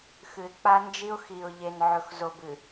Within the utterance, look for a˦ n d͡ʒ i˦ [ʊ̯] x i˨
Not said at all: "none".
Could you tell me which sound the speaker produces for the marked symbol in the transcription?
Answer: ʊ̯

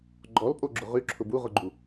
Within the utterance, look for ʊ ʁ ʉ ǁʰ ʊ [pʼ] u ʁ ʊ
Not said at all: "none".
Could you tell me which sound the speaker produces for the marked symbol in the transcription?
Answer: b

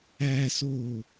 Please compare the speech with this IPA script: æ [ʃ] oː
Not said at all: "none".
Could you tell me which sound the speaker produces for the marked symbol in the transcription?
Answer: s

